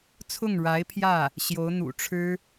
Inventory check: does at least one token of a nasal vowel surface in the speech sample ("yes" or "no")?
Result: no